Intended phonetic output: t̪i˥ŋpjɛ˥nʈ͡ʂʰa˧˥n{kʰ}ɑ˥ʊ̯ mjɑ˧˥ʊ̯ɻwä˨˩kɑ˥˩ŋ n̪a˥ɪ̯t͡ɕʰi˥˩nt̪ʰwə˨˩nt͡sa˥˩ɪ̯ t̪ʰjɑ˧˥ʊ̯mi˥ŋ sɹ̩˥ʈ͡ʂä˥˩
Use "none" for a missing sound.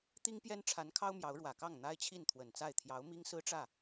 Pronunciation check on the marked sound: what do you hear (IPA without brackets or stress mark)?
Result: kʰ